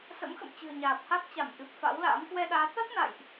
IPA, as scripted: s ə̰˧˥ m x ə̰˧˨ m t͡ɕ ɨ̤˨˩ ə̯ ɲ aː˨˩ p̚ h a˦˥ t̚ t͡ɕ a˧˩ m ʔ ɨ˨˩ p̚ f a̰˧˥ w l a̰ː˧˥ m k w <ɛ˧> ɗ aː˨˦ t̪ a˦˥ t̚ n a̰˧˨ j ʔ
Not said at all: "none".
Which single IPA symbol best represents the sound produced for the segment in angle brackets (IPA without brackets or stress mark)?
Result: ɛ˧